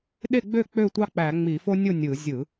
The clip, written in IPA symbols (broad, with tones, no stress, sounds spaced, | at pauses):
ɗ e˥˨ ɡ͡b ø˥˨ k͡p ø˥˨ tʷ ɑ˦ k͡p æ˧˩˧ ŋ͡m i˧˩˧ f o˦ nʲ o˥˨ nʲ ɯ˧˩˧ zʲ ɯ˧˩˧